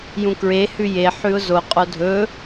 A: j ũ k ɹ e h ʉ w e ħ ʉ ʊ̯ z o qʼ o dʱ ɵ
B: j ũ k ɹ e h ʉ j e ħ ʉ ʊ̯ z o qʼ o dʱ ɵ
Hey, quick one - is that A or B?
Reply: B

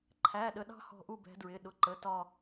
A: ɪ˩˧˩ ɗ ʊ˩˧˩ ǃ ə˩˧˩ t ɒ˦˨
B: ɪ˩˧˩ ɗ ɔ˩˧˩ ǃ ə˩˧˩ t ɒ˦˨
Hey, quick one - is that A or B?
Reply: A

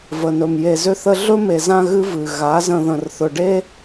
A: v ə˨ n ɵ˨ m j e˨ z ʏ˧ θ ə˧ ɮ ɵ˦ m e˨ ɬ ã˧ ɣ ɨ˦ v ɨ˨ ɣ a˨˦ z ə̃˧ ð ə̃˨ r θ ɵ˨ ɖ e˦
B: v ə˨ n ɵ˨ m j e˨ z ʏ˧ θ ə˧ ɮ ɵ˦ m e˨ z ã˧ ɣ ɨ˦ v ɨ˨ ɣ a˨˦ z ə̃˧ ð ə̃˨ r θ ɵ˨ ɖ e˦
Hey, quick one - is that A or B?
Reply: B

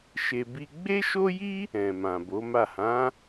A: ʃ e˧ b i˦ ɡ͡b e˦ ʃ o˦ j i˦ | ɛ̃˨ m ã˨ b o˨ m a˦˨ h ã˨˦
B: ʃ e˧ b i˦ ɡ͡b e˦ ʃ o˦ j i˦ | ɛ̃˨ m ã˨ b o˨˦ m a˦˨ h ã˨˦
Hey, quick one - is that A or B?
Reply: B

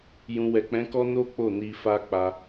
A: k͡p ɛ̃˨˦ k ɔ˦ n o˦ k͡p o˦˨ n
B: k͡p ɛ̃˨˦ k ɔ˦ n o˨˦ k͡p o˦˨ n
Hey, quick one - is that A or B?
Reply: A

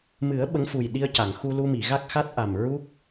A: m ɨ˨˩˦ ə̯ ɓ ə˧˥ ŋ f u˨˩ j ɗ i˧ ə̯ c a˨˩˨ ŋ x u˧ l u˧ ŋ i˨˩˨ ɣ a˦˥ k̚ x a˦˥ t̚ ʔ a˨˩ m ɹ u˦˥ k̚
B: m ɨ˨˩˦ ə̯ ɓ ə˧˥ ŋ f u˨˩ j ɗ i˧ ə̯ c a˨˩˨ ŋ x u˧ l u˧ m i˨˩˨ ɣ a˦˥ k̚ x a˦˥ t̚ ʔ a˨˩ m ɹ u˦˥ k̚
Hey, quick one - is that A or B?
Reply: B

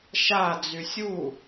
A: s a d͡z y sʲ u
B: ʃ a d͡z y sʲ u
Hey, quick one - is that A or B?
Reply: B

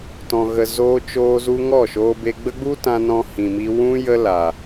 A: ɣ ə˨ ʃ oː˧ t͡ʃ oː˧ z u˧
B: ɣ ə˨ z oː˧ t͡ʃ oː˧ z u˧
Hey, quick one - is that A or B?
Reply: B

